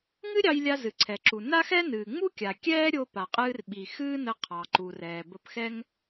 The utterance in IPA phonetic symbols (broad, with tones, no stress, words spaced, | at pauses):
ŋɨ˥ɾʲɑ˧jlʲa˧ zɨ˩ǀʰɛ˩ǁu˩ na˥xɛ˥nɨː˩ ŋ͡mu˥kʲa˩ kʲɛː˥ɾʲo˧ pa˩qʼɨː˧rɓi˩ xɨː˥nə˧ qʰɑ˩ǃu˩rɛː˩ bə˧pxɛ˥ŋ